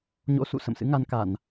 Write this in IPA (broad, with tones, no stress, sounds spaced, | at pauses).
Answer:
ɲ o̰˧˥ s ṵ˧˨ s ə̰˧˨ m s ɨ̰˧˥ ŋ a˧ n k a˧˩˨ n